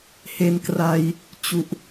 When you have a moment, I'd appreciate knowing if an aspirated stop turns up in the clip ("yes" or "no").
no